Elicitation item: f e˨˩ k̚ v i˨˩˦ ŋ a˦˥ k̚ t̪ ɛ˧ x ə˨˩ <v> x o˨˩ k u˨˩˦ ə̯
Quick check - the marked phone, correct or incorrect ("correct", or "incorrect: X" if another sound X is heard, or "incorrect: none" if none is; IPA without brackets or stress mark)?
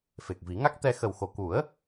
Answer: incorrect: w